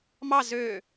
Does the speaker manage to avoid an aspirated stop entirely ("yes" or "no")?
yes